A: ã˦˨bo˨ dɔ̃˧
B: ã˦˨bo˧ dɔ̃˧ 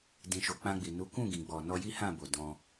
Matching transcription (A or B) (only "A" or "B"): A